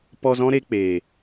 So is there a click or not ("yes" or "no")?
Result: no